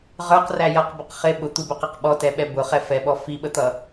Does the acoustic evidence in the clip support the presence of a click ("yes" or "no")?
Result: no